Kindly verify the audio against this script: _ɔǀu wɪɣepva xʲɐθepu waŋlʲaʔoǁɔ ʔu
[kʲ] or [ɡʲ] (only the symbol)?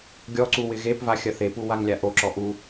ɡʲ